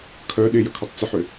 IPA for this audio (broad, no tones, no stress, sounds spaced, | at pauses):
kʰ œ ɗ ɪ j ə kʰ ɔ tˤ t͡s ə ħ ʏ